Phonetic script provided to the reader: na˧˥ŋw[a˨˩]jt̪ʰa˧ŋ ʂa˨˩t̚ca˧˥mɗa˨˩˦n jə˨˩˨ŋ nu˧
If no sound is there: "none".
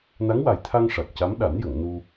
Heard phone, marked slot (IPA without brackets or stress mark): a˨˩